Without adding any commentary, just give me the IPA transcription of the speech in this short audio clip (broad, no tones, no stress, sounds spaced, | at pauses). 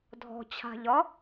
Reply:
dʱ ɔ̤ t͡ɕʰ a̤ ʎ ɒ